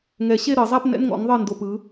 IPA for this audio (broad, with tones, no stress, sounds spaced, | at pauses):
ŋ ɛ˨˩˦ ɕ e˦˨ ɾ ɤ˨˩˦ zˤ a˧˥˧ p n ɛ̰˧˥˧ n ŋ ɔ̰˨˦ ŋ ðˤ ɤ˦˨ n d o˦˨ p ɯ˨˦